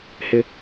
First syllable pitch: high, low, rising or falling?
high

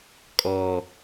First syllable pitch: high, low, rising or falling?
low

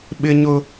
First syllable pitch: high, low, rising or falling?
high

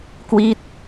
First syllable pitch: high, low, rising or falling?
falling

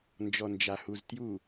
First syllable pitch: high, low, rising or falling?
low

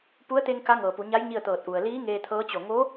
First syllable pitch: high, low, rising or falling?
rising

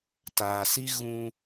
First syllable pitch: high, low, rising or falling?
low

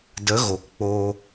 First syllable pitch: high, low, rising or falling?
rising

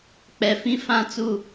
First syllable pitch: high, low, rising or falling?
low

